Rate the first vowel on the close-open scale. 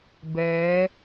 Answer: mid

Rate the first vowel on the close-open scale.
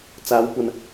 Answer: open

